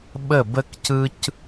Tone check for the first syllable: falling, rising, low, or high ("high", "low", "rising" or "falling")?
falling